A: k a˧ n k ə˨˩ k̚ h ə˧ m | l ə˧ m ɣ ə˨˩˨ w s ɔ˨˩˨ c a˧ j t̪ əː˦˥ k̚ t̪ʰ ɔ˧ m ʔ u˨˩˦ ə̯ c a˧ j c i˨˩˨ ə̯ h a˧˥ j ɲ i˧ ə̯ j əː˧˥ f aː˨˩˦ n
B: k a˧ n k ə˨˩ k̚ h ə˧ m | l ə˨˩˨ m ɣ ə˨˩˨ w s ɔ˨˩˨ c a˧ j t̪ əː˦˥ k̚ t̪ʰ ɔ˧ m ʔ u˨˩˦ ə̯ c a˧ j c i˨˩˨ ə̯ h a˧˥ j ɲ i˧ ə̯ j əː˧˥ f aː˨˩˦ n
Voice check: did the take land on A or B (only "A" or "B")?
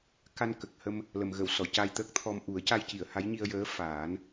B